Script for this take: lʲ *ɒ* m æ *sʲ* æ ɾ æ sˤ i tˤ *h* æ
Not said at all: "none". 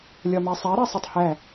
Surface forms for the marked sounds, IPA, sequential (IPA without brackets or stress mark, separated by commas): ɒ, sˤ, h